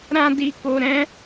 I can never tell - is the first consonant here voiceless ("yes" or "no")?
no